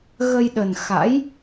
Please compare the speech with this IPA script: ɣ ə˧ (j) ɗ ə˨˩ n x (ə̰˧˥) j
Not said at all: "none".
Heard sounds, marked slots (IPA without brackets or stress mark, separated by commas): j, a̰˧˥